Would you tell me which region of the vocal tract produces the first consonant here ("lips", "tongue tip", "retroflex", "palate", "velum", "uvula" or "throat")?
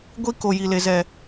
velum